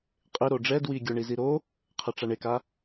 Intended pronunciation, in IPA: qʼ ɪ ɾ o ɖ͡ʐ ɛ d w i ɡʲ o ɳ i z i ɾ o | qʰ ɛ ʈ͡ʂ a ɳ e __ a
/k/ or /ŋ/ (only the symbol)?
k